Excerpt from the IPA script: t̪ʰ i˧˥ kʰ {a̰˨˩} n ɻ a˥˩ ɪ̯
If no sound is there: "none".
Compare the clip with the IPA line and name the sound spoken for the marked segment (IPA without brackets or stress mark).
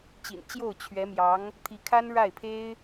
a˥